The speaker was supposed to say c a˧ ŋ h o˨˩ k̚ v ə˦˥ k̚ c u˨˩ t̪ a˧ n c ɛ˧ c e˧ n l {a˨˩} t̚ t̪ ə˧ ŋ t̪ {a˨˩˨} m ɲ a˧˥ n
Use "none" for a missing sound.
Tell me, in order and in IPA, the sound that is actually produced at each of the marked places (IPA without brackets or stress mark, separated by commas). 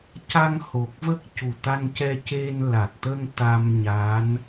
a˨˩, a˧